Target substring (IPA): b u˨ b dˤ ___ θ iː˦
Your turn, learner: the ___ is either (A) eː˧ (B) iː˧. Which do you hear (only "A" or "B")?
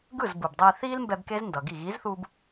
B